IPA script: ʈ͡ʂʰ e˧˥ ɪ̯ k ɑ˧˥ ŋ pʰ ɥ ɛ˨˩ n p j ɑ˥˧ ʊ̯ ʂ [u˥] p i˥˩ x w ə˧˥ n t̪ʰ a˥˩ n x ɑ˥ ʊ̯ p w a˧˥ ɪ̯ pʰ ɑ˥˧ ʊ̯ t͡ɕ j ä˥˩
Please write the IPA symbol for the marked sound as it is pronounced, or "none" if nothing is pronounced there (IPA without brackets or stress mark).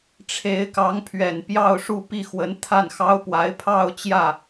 u˥˧